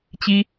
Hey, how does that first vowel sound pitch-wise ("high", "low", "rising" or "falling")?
high